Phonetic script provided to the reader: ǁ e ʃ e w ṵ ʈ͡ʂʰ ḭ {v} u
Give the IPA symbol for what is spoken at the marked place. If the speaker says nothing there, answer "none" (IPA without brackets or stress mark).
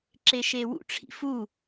f